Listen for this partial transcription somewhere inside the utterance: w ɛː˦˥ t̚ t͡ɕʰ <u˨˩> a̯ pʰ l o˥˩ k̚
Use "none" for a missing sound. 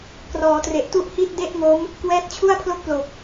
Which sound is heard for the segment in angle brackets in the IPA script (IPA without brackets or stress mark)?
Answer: u˥˩